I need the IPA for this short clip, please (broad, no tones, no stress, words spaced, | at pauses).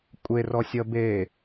kʷʼerɔsʲʌ be